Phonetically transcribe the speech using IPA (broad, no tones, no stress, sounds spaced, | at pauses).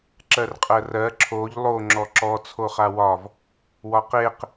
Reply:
ǁ ɜ r qʼ ɜ r ɜ ǁʰ o ʎ lˠ o ŋ͡ǁ ɔ ǁ ɔ t͡sʰ o χ a w ɒ v | w ɒ q e q